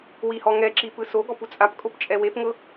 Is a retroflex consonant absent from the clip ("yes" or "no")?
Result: yes